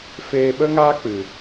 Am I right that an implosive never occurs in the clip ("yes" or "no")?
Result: no